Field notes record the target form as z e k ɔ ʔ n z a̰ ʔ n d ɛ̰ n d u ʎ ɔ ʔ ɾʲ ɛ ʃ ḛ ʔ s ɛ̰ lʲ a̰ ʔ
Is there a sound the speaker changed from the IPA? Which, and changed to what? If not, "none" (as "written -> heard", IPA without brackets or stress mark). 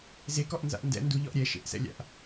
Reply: none